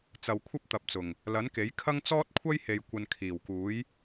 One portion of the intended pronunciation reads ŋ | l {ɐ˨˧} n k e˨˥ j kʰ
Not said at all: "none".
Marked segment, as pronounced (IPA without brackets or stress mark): ɐ˨˥